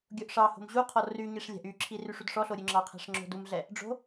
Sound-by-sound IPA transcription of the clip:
ɡʲ o ʔ ʂ ɑ h o̤ m ʑ u qʰ ɔ r y ɲ i ʂ lʲ æ̤ ʔ y ǁʰ i r y ʂ u d ʂ ɔ ɬ o ɾʲ ʉ ŋ͡ǁ ɑ qʰ æ̤ ʂ ŋ͡ǁ o̤ d u m ɮ ɛ | ɖ͡ʐ o̤

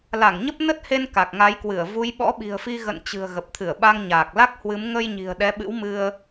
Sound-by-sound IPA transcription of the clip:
l a˧˩ ŋ ɲ ə˦˥ p̚ n ə˦˥ t̚ h e˧ n k a˨˩ k̚ ŋ a˨˦ j k w ɨ˧˩ ə̯ v u˨˦ j ɓ ɔ̰˧˥ ɓ i̤˨˩ ə̯ f i˧ ɣ ə̰˧˨ n t͡ɕ ɨ̤˨˩ ə̯ ɣ ə˨˩ p̚ t̪ʰ ɨ˧˩ ə̯ ɓ a˧ ŋ ɲ aː˨˩ k̚ l a˦˥ k̚ h w ɨ˨˦ m ŋ ə˧ j ɲ i̤˨˩ ə̯ ɗ ɛ˨˦ ɓ ɨ̰˧˥ w m ɨ˧ ə̯

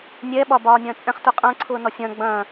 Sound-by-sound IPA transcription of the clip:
nʲ ɛ ɓ ɒː b ɒː nʲ ɐ̃ː t͡sʼ ɛ̃ χ t u qʼ ɐ̃ː ǀʰ ʊː n ɔ sʲ ɐ̃ː ɡ͡b ɐ̃

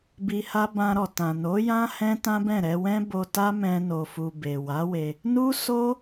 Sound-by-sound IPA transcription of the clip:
b i˧ h a˦ b ã˧ ɾ ɔ˨ t ã˨ n o˨˦ j ã˦ h ɛ̃˦ t ã˦ b ɛ̃˦˨ ɾ ɛ˧ w ɛ̃˦ b o˧ t a˦ m ɛ̃˧ n o˨ f u˨ b e˨ w a˨˦ w e˧ | n u˦ s o˦

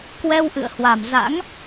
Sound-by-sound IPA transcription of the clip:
k w ɛ˧ w ʔ ɨ̰˧˨ ə̯ h w a˨˩ m z a̰˧˥ ŋ

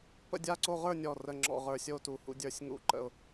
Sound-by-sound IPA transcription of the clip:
p ə̰˥˨ dʲ a˥˨ ǀ o˥˨ ʁ ə˞˥˨ nʲ ɔ˧˩ r ə˧˩ ŋ͡ǁ ɔ̰˥˨ ʁ ə˞˧˩ sʲ o˥˨ t u˧˩ h ṵ˥˨ dʲ ə˞˥˨ sʲ ŋ ṵ˥˨ ǃ ə̰˥˨ ʊ̯

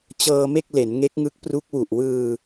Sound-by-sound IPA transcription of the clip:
t͡ɕ ɤː˧ m e˥˩ k̚ l e˩˦ n ŋ e˦˥ k̚ ŋ ɯ˦˥ k̚ p r u˦˥ k̚ w u˨˩ ʔ w ɯː˧

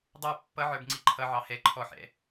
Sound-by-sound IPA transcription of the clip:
dˤ ə˞ pː ʌ ʕ ə˞ b ŋ͡ǀ i ǃʰ ʌ ʕ ɑ h ɛ ǃʰ ɔ ħ ɛ̰

